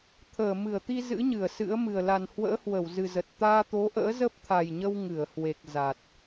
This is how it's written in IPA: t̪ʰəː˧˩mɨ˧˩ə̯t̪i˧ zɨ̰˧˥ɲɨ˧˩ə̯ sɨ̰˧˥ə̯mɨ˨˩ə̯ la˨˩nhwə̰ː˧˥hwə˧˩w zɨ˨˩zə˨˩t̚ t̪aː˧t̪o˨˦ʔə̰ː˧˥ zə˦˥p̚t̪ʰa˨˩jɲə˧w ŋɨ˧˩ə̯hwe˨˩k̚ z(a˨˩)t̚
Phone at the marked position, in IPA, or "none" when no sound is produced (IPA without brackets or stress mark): a˨˩